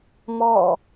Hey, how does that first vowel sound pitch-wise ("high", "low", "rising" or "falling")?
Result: falling